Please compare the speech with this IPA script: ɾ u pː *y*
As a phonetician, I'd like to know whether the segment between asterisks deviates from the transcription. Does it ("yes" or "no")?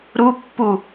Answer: yes